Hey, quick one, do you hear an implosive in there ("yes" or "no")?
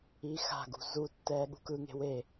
yes